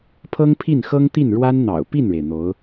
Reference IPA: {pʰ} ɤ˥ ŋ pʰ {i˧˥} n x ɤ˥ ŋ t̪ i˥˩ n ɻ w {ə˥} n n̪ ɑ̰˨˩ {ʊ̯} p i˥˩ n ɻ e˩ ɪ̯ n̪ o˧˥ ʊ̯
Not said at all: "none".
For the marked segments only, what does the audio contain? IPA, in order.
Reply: pʰ, i˥˩, a˥, ʊ̯

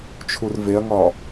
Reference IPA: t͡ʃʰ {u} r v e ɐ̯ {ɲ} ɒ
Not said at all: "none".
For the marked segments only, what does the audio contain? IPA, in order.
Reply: u, ŋ

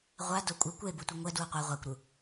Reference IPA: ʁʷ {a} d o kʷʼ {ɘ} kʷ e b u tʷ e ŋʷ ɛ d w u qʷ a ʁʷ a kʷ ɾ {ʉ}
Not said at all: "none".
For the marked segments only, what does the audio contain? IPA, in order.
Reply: a, ɘ, u

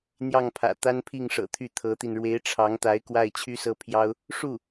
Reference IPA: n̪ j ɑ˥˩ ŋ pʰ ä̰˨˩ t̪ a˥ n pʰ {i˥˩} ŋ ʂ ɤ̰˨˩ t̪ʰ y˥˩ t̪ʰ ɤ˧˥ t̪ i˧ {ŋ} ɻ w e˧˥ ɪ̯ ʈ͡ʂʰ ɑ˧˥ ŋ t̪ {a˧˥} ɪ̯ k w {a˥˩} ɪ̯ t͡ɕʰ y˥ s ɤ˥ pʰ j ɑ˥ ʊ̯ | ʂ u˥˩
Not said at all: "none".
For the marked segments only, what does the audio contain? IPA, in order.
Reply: i˥˩, n, a˧˥, a˥˩

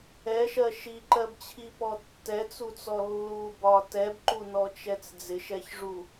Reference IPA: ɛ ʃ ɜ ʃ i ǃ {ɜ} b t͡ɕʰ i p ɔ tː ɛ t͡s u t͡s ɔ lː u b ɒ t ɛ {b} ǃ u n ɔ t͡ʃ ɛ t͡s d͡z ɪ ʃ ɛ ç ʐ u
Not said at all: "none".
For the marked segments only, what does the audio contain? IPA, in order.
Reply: ɜ, b

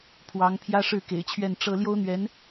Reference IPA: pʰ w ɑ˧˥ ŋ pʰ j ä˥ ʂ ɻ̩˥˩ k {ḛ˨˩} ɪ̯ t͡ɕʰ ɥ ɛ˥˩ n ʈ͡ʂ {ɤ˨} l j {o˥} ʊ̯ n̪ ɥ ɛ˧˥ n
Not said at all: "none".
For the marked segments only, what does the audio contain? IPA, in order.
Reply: ḛ˨˩, ɤ˥, o˥

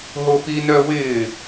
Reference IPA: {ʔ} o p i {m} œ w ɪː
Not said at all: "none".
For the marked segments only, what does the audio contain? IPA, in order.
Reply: ɦ, n

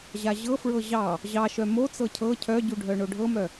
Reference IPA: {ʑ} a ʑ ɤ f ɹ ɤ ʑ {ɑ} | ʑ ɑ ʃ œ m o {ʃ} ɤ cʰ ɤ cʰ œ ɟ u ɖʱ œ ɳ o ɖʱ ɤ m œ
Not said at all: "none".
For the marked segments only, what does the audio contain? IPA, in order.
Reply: ʑ, ɑ, t͡s

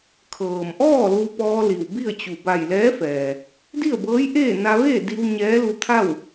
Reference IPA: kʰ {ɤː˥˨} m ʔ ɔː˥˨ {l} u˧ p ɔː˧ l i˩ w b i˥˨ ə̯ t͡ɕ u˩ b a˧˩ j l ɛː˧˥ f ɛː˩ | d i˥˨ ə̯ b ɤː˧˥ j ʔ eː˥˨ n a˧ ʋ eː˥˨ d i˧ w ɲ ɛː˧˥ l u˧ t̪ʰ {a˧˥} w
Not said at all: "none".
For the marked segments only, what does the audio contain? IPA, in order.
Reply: ɤː˩, l, a˥˨

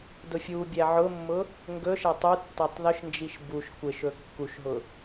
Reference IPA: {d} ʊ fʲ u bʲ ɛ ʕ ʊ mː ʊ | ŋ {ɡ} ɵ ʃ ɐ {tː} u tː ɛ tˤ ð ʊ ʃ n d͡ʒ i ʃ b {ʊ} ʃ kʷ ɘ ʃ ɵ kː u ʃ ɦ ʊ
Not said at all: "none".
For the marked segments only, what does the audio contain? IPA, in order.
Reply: d, ɡ, tˤ, u

